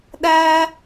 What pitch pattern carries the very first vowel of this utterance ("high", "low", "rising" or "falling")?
high